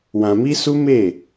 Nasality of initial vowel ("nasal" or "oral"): nasal